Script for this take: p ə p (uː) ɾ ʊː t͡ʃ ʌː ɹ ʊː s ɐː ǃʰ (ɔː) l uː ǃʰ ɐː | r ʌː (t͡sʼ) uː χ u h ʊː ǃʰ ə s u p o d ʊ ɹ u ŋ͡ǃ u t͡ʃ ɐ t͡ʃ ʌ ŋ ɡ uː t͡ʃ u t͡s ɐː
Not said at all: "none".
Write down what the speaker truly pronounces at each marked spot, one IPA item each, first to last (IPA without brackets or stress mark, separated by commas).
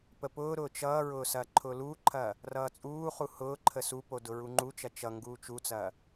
ʊː, ʊː, t͡sʼ